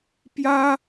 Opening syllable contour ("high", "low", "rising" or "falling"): high